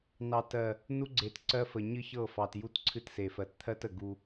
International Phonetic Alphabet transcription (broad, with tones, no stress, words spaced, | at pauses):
nɑ˨t ɜ˨ | nu˦ɡ͡ǀe˨tǀɜ˦fə˨ ɲɨ˦çɤ˦˨fɑ˨tju˦t ǀʰɨ˦tse˨fɜ˨t t̪ʰɜ˦tə˨ ɡu˦